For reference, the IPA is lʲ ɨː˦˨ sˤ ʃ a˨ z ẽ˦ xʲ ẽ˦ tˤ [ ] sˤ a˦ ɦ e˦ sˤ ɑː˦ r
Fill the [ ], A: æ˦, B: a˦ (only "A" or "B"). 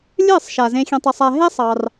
A